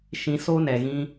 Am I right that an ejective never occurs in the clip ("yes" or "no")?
yes